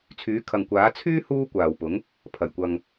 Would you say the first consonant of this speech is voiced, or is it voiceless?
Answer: voiceless